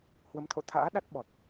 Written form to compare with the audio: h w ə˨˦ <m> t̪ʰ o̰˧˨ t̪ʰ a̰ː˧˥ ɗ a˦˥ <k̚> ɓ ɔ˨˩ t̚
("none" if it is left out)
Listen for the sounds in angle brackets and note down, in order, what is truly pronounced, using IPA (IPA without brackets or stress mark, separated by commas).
m, t̚